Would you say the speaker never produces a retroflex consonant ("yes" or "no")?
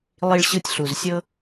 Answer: no